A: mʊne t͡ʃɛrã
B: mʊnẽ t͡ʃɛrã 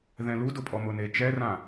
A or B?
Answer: A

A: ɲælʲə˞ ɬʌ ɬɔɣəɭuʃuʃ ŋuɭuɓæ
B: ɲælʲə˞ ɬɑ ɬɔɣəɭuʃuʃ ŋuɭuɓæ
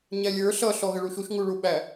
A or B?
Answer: A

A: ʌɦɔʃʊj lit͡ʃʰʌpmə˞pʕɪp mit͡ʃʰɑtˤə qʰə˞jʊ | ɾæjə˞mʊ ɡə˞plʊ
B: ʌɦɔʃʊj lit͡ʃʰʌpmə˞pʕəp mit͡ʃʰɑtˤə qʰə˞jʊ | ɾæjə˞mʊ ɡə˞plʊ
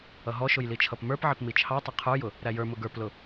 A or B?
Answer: A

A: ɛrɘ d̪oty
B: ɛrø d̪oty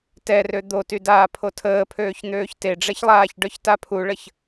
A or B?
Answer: B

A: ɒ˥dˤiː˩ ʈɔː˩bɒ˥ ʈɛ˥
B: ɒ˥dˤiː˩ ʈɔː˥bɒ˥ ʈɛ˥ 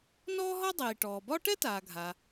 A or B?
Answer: A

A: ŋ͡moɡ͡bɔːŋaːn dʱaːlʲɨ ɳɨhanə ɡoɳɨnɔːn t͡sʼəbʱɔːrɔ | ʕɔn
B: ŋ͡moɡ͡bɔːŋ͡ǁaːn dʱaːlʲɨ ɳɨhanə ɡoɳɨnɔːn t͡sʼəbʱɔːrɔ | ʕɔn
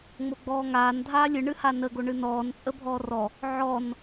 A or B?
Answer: A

